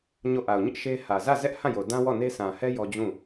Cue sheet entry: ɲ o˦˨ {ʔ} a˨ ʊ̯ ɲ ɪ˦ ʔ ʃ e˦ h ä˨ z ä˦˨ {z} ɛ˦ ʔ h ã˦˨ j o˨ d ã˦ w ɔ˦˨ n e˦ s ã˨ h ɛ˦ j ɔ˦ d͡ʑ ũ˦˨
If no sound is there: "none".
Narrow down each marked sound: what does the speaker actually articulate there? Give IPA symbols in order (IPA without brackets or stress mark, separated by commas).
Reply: ʔ, z